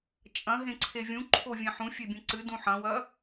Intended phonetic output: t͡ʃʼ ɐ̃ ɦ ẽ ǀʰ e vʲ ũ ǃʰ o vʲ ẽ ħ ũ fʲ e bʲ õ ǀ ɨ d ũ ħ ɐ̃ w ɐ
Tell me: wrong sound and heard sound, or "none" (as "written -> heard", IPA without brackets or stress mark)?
none